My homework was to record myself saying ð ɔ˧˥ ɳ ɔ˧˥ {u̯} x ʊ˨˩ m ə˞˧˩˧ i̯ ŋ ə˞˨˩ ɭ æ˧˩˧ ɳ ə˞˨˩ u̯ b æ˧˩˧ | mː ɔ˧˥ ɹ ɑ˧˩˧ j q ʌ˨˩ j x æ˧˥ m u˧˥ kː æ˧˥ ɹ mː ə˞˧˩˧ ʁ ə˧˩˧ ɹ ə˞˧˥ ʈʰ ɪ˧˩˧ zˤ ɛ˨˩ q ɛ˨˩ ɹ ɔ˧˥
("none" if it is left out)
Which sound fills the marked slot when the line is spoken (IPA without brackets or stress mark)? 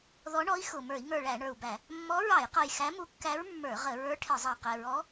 i̯